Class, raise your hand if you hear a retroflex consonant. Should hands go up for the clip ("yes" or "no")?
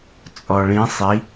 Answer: yes